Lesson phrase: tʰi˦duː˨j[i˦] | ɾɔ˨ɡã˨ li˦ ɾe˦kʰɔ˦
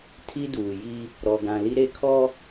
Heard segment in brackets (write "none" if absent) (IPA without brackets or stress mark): i˦